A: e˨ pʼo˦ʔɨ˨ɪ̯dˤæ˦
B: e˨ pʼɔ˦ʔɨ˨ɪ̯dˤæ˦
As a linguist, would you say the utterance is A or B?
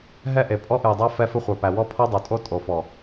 B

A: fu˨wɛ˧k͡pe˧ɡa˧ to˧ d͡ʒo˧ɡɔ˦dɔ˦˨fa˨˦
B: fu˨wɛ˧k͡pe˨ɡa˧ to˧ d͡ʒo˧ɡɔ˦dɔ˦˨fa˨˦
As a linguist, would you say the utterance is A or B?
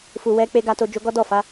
A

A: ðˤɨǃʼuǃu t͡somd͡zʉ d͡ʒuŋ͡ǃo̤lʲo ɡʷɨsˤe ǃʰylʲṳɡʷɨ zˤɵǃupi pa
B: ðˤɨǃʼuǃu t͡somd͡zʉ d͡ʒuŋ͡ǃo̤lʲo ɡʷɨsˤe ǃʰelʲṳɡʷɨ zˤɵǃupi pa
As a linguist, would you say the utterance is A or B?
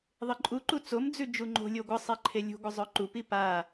B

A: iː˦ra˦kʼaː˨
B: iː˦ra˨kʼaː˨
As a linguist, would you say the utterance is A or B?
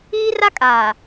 A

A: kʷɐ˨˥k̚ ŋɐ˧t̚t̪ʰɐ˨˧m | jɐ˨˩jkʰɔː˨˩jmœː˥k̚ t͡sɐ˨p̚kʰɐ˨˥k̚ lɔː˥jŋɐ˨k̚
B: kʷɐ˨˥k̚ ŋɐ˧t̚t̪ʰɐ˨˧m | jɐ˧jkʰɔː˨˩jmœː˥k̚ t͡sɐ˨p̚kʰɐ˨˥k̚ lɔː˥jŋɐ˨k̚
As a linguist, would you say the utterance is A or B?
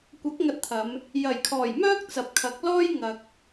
A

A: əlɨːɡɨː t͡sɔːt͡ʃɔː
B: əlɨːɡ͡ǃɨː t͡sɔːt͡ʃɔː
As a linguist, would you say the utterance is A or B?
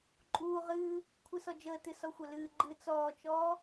B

